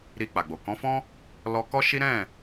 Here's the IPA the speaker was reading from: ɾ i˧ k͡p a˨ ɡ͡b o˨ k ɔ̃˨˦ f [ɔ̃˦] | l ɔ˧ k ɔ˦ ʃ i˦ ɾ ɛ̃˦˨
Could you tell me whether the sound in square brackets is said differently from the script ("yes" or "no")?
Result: no